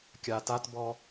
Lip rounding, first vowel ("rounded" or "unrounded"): unrounded